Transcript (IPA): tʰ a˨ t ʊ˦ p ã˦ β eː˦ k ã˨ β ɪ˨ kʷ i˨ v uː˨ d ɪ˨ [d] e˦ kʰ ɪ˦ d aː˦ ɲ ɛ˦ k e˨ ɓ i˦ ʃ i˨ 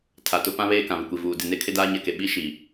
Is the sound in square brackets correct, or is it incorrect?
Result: incorrect